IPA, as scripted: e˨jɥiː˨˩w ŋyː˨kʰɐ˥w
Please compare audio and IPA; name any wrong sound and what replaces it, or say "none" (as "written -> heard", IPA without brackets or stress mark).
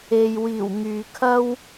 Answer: ɥ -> w